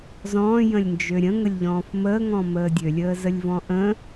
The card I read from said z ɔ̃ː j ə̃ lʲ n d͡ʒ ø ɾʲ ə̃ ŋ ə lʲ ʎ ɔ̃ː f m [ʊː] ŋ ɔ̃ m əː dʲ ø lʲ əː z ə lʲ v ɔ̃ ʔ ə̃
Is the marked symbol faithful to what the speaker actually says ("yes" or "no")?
no